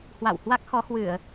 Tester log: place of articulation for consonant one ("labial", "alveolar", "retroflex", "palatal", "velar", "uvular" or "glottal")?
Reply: glottal